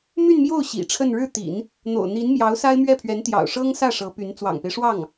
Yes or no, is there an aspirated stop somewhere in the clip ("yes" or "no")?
yes